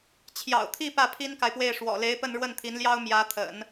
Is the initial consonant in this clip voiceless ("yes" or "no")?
yes